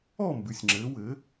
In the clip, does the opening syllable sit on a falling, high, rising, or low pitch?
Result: falling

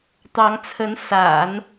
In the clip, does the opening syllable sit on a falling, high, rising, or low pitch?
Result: rising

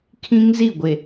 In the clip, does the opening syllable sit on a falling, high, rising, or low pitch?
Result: high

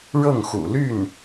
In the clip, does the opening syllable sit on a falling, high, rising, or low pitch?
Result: falling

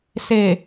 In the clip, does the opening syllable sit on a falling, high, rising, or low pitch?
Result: low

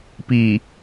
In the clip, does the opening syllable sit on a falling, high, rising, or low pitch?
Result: low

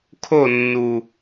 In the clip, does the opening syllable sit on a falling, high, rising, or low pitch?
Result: falling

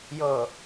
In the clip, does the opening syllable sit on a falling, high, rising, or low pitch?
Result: low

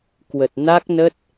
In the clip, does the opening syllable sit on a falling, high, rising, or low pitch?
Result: low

